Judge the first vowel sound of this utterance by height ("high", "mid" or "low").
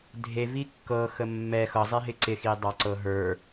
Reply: mid